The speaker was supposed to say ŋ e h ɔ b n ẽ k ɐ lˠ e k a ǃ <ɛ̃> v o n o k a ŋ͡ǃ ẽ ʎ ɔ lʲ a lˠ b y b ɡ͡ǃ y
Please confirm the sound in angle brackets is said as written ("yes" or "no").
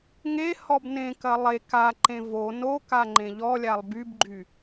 no